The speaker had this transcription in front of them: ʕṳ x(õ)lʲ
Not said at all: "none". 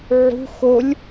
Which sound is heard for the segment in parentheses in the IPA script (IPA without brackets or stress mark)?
o